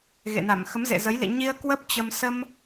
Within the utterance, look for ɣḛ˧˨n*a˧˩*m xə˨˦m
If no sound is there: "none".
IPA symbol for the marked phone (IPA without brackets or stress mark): a˧˩